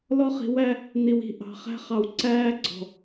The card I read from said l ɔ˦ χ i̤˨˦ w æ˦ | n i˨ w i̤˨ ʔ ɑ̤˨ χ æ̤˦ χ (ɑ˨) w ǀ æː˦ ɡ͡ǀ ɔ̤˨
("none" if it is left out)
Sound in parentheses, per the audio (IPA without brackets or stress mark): ɑ˨